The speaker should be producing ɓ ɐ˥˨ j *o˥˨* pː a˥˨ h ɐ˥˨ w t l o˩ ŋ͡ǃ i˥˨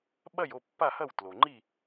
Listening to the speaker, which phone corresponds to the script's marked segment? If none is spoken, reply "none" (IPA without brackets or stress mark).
o˥˨